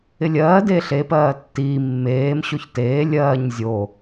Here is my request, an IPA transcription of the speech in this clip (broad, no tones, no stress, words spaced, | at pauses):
ɪlʲɜːdeː ɬepɜː tːiː mːeːm ɕoçteː lʲɜːɲ zʲo